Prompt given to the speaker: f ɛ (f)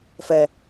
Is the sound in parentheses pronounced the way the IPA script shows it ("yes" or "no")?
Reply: no